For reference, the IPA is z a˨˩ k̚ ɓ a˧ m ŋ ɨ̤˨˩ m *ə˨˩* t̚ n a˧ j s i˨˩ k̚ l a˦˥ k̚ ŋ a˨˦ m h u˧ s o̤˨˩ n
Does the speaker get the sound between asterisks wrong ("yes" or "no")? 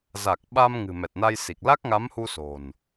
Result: yes